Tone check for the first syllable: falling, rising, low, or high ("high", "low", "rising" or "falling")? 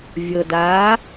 low